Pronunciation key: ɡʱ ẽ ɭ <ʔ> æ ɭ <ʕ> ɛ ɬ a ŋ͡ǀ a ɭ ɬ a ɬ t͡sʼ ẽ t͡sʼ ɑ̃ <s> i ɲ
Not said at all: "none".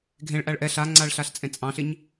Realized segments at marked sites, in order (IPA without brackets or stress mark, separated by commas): ʔ, ʔ, ɬ